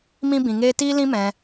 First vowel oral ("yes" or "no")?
no